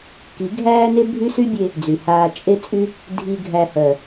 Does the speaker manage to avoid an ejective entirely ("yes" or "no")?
no